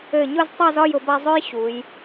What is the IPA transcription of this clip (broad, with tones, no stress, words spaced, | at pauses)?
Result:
ɘ˧˩ɲʊ˥˧ztˤa˥˧zɒ˥˧j ʊ˧ba˥˧zˤø˥j ɕu˩˧j